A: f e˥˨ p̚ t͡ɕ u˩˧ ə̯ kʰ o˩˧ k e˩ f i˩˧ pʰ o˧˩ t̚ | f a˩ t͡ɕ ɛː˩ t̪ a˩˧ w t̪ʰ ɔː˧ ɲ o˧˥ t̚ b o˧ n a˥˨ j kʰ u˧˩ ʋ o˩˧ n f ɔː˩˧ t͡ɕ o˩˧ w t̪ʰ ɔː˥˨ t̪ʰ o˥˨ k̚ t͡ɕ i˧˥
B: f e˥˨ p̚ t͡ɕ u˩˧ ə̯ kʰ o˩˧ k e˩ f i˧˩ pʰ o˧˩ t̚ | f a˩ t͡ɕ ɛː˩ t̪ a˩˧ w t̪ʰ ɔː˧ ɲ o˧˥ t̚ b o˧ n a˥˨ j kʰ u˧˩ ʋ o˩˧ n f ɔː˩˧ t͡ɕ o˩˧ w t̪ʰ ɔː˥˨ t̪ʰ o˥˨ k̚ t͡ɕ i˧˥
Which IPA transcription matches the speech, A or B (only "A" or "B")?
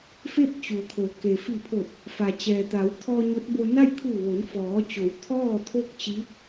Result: B